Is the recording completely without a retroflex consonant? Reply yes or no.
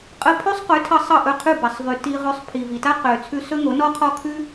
yes